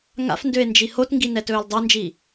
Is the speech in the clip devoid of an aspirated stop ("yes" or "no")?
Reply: yes